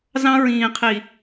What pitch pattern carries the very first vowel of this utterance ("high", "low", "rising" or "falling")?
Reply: high